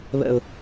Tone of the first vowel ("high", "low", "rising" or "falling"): low